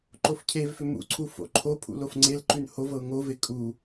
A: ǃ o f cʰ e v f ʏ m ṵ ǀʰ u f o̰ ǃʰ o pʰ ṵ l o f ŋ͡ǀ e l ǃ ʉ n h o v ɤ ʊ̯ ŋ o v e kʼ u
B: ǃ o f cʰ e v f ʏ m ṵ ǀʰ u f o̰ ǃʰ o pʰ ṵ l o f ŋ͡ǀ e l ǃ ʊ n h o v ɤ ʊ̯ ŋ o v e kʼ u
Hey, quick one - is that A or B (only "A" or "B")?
A